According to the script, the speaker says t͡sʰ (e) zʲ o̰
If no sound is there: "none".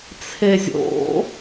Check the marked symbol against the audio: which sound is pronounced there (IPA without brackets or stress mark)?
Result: e